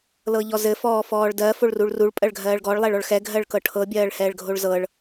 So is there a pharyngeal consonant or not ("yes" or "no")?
no